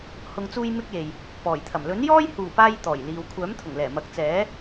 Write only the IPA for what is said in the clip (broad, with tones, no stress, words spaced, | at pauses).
hʊ˨ŋ t͡suː˧j mɪ˥k̚je˨j | pɔː˨˩jt̪ʰɐ˨˩m lɵ˨˥njɔː˥jhuː˨˩paː˧j t̪ɔː˨˩jliː˨w kʷʰœː˨˥mt̪ʰʊ˨˩ŋlɛː˨˩ mɐ˨˥k̚t͡sɛː˨˥